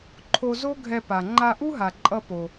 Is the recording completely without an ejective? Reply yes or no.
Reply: no